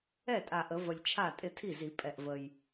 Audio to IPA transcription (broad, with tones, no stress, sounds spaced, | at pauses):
ɛ˥˩ tʼ a˨˩ ʔ ə˨˩˦ v ə˨˩ lʲ t͡ʃʰ a˥˩ tʼ ɪ˥˩ tʰ i˥˩ z i˨˩˦ pʼ ɛ˨˩ ʔ v ə˨˩ j